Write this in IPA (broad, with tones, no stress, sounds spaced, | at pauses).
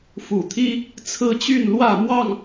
f u˨˩ t̪ʰ i˦ | t͡sʰ ɹ̩˦ t͡ɕ y˥˨ n l w ä˥˨ m w ɑ˥˨ ŋ